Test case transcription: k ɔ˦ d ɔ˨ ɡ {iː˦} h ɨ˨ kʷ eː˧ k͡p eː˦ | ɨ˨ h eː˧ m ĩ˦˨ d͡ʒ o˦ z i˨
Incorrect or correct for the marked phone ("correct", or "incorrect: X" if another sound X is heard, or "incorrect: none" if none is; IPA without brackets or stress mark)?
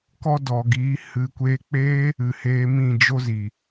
incorrect: iː˨˦